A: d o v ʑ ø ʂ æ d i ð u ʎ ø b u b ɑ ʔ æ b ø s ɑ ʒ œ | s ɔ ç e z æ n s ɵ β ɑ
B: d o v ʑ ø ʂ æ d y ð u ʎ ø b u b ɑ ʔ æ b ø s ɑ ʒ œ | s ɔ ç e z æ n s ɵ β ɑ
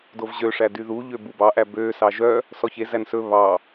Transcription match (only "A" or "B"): B